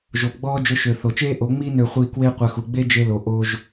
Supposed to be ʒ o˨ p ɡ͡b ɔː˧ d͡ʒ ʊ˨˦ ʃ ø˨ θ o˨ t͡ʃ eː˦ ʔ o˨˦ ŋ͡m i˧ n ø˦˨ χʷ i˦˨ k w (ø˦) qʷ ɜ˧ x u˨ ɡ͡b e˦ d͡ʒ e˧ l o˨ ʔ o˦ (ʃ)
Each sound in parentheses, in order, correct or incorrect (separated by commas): incorrect, incorrect